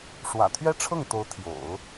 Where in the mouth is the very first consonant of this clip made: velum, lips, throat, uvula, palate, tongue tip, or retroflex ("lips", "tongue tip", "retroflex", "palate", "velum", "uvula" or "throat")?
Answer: retroflex